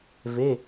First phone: v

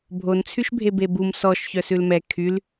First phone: bʱ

